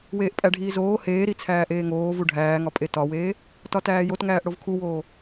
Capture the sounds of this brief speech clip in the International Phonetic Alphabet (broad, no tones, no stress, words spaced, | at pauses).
weːʔpʼæɖʱiːzoː heːɾi t͡sʰæːʔeːŋoː vuɖʱæːŋɒ pʼetɒweː | tɒtæːjotŋæːʔ ɽovkʰuwoː